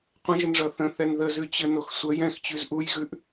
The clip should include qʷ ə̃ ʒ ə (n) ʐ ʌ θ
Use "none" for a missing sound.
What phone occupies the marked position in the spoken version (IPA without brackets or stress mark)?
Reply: n